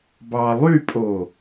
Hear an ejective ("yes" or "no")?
yes